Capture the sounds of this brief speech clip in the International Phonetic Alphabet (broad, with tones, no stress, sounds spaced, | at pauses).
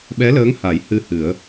ɓ ɛ˧˥ l əː˧˥ ŋ h a˨˩˦ j h ɨ˧ h ɨ˨˩˦ ə̯